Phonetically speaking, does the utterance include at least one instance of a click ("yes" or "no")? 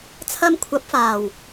no